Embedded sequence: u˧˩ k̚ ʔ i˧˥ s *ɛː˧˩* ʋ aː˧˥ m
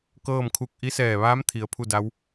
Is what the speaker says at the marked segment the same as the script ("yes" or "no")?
yes